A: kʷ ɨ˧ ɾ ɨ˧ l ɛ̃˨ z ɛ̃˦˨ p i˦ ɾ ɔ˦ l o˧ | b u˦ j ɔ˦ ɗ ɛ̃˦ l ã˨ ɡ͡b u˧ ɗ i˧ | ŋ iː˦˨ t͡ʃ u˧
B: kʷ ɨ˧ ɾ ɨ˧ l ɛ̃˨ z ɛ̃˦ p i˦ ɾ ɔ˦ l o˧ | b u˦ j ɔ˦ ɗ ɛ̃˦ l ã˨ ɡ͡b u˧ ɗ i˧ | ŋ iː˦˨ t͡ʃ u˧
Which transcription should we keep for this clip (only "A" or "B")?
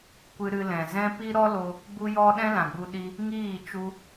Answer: B